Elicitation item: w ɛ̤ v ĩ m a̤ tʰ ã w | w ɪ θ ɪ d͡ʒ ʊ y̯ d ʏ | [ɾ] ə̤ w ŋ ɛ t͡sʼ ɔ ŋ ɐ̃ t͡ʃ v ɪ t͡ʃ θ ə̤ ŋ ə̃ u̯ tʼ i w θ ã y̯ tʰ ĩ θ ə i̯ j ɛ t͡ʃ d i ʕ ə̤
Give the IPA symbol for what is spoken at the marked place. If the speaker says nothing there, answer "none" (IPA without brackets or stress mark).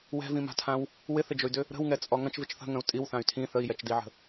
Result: ɾ